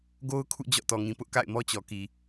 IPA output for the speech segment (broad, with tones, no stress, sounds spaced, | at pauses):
ɡ o˦ ʊ̯ kʰ ṵ˦˨ d͡ʑ ɔ̰˦˨ t ɔ˨ ŋ ĩ˨ p ʊ˦ ʔ k a̰˦˨ ɪ̯ m ɔ˦ t͡ɕ ɔ˨ k i˨